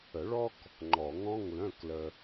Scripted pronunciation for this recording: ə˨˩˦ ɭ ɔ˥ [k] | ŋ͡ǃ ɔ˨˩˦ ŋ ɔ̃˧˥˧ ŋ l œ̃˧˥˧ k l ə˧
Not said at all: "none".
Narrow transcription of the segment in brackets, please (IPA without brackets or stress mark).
k